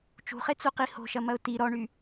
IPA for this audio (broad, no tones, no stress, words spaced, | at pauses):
t͡ʃṳχet͡suqi ho̤ʃɐmɐʊ̯ ti ɾɔɳy